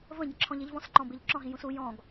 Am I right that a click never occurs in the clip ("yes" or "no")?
no